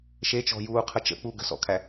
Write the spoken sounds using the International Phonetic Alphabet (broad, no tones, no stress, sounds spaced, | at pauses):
ʃ e t͡ʃ ɔ̤ j uː qʰ ə t͡ʃ ə̰ k͡p u ɡ ə̤ s ɔ̰ kʰ æ